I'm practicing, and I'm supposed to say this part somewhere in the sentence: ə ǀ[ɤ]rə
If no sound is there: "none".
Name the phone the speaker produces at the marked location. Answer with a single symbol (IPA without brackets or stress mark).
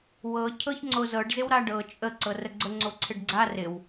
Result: ɤ